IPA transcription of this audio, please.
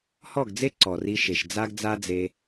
h ɔ˦˨ ɡ d͡z e˦ ǀ ɔ˨ r i˧ ʃ e˨ ʃ d͡z a˦ ɡ d͡z a˦ d͡z e˧

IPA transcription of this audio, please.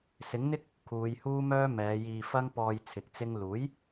s ɪ˨˥ ŋ n̪ ɪ˥ k̚ | kʰ uː˨˧ j h uː˥ m œː˥ m ɛː˨˧ j iː˧ f ɐ˥ ŋ p ɔː˧ j t͡sʰ ɪ˨˥ k̚ t͡s ɪ˥ ŋ l uː˨˥ j

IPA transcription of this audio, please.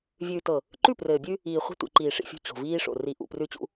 vʲ ʉː˨ t ɤ˨ | ǃ ʉ˦˨ p r ɘː˨ bʲ ʉ˦ | iː˨ χʷ i̤˦ tʷ ḭ˨ ǃ iː˨ ʂ ḭ˨ fʲ ṳ˦˨ t͡ɕ o̤˨ v iː˦ ʂ o̰˨ r i˨˦ ʔ ṵ˨ p r ʉ˦ t͡ɕ ṵ˦

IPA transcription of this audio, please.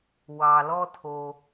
w ɑ˩ l ɔ˥ tʰ o˩

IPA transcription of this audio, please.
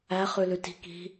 æ χ ʉ l ʉ t i̤ k i̤

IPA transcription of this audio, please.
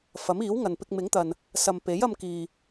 f ɐ˨˥ m iː˨˥ w ŋ ɐ˨ n p ɪ˧ k̚ m ɪ˨˥ ŋ t̪ ɐ˨ n | s ɐ˨ m p e˨˥ j ɐ˧ m k iː˨

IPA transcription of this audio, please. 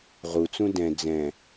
ʁ u t͡s ũ d ɛ̃ d͡z ɛ̃

